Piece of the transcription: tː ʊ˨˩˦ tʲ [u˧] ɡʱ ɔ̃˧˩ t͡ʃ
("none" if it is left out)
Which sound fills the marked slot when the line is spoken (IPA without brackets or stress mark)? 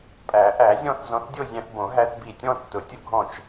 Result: ʊ˧